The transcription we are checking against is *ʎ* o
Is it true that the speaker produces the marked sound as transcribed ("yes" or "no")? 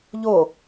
yes